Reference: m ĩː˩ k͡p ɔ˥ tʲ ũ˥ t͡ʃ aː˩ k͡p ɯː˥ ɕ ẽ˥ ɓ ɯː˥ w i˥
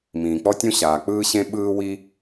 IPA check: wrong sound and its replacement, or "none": t͡ʃ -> ɕ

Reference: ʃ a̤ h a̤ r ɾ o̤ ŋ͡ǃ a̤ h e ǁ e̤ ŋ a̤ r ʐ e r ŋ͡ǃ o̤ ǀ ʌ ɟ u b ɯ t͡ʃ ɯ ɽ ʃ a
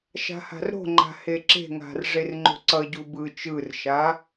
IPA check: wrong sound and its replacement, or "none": ɽ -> r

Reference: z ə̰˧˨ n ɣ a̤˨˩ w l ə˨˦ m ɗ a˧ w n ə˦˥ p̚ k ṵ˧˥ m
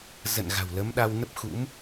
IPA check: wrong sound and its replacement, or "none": k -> x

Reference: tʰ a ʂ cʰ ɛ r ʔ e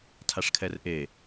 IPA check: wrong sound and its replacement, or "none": cʰ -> kʰ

